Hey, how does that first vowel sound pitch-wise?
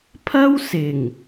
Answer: high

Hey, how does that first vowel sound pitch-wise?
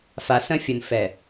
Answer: low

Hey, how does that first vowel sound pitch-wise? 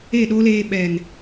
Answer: falling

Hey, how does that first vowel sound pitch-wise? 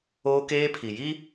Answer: high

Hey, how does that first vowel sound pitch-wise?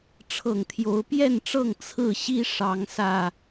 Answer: low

